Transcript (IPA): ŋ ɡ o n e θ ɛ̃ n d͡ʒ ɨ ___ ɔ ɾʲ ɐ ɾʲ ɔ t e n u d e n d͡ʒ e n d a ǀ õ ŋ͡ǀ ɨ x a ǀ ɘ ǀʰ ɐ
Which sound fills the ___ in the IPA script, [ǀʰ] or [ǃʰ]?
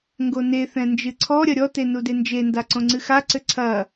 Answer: ǀʰ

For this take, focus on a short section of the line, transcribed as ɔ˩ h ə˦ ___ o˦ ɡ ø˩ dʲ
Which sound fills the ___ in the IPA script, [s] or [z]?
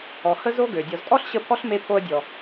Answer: z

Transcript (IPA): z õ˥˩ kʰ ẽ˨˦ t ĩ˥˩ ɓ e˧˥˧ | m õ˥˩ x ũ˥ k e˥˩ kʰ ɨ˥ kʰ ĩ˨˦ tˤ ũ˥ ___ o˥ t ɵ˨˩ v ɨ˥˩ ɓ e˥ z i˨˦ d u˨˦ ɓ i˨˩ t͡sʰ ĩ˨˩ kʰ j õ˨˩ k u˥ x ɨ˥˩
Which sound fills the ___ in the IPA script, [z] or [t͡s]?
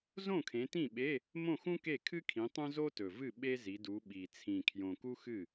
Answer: z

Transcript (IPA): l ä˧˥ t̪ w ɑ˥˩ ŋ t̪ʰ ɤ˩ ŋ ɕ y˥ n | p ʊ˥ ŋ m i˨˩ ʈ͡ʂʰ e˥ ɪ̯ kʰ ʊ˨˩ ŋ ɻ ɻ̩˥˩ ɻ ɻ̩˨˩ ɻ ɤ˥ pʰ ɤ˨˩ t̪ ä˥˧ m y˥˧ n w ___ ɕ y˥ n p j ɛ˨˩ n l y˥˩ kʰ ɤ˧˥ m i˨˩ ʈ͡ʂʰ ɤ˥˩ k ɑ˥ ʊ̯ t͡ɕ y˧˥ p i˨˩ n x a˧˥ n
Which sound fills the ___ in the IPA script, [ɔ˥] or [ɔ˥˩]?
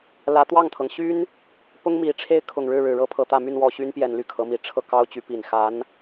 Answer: ɔ˥˩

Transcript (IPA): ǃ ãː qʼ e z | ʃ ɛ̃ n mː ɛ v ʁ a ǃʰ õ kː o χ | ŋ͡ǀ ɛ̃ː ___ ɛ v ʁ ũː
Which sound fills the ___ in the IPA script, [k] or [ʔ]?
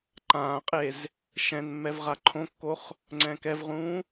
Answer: k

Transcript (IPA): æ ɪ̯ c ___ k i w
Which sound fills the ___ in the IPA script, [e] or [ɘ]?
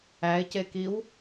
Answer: e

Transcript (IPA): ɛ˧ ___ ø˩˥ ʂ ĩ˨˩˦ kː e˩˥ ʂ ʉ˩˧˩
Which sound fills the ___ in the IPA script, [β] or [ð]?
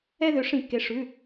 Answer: ð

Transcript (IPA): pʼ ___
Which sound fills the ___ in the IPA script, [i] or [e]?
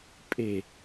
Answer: e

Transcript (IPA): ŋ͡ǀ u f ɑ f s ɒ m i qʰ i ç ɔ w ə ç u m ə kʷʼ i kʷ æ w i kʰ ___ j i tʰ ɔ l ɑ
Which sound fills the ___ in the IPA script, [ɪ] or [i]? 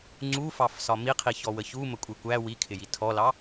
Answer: ɪ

